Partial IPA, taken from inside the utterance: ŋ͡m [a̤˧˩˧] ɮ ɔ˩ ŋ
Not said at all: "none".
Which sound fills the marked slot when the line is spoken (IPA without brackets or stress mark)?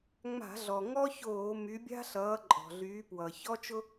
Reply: a̤˧˩˧